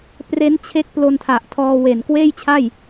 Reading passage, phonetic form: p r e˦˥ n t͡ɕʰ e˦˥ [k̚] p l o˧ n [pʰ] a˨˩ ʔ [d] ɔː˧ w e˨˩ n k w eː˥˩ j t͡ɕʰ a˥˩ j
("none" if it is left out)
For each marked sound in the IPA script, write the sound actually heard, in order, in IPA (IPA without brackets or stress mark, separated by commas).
k̚, tʰ, tʰ